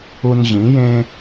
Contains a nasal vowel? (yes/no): yes